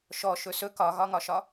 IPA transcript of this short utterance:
ʃ ɔ ʃ ɵ s ɵ k ɒ ɣ ɒ ŋ ɒ ʃ ɒ

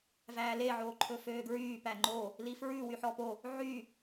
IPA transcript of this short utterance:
v æː l e ʕ oː ǃʰ ɵ f øː ɡ ɹ yː p æ ŋ͡ǃ o | l i f ɹ ʉ w y ħ ɔ p o | ʕ y

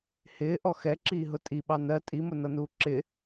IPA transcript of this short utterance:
h ɪː ʔ ɔ x ɛ ǁ iː ɦ ʊ tʼ i ɓ ɑ n ɜ tʼ i m ʊ n ʌ n uː ǁ ɪ

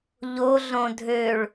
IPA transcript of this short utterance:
ʎ o ɮ õ dʱ ø ɭ

